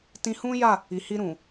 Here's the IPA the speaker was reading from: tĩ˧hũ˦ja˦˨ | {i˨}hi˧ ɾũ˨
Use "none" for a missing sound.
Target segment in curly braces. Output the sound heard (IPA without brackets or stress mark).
i˨